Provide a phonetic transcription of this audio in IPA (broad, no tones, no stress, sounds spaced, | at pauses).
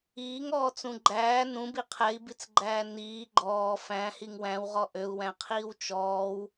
iː ŋ ɔː t͡s ũ ɡ͡ǃ æː n ũ b i qʰ ɛ i̯ b i t͡s ɡ͡ǃ æː n iː ɡ͡ǃ ɔː f æ̃ h i ŋ w æ̃ w ʁ ɔ ʔ ø u̯ w æ̃ qʰ iː w t͡ʃ ɔː w